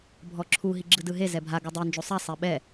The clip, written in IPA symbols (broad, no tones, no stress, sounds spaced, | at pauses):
bʱ ɔ ǁʰ u ɦ i ɡ͡ǁ ɯ d ɯ ɦ e z ɛ bʱ a ɡ u dˤ i n d͡ʒ u sˤ a sˤ ɛ ɓ ɛ